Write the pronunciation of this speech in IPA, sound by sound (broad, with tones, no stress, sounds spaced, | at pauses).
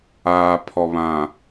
aː˨ pʰ ɔ˨ β ã˨